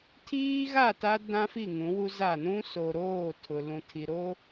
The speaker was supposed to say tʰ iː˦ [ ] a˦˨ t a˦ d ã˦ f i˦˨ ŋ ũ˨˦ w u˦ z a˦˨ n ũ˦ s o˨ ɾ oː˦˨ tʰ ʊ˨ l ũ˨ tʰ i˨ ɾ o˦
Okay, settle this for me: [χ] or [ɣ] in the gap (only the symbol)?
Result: ɣ